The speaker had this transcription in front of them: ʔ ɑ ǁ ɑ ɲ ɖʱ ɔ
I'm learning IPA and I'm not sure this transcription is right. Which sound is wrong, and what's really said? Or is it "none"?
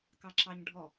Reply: ʔ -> k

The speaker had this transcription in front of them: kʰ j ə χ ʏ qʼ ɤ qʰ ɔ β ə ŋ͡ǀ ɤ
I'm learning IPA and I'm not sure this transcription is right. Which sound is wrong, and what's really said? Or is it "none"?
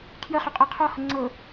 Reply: β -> h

